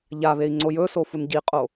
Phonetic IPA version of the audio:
ʎaβei̯ ŋ͡ǀojɵso funɟiqʼo

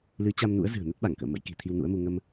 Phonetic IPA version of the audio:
lɨ˨˦t͡ɕa˧mnṵ˧˥ə̯ zɨ̤˨˩ə̯nə˦˥t̚ ɓa˧˩ŋkə̰ː˧˨mə̰˧˥jki̤˨˩ t̪ʰi˧wnṵ˧˥ə̯mu˧ ŋə˧m

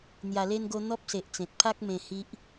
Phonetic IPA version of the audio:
n̪ja˨˩le˧nɡo˧ n̪ɔ˦p̚se˨ʔt͡sẽ˨t̚ pʰa˦k̚ mẽ˧hi˦ʔ

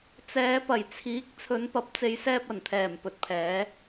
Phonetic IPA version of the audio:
t͡sɛː˨˧pɐ˨˩jt͡sʰiː˨˥k̚ t͡sʰɵ˨˧npɐ˨˥p̚t͡se˨˧jsɛː˧p̚ ɐ˨˩nt̪ʰɛː˨˩mpɵ˨t̚pʰɛː˨˧

